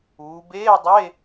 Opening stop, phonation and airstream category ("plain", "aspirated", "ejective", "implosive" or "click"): plain